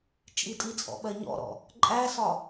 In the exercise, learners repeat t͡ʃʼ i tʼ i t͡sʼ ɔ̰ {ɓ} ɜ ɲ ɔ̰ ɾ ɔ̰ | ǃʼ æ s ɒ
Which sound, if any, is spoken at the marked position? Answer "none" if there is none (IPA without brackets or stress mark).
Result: ɓ